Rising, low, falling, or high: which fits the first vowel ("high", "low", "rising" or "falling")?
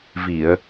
low